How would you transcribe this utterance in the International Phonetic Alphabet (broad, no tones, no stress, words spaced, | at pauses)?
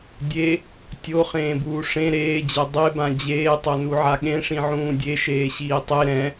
dʲe | tʲoχẽːbuː ʂẽ ɾeːd͡ʑɛ dˤebã d͡ʑeːtˤonuʕa ɠẽʂĩʕũː dʲeʃeːɕiː tˤe ɾɛ̃